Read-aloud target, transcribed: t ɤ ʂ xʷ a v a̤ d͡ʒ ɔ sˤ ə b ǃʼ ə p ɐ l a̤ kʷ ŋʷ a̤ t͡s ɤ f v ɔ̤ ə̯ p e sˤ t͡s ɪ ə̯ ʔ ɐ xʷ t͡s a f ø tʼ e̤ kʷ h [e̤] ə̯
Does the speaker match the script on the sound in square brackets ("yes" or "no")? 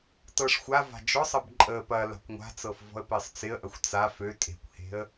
yes